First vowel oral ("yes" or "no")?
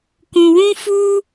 no